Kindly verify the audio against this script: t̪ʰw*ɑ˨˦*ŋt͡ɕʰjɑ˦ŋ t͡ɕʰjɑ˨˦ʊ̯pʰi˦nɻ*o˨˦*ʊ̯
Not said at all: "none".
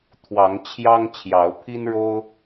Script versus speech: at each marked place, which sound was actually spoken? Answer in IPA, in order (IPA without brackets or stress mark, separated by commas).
ɑ˨˦, o˦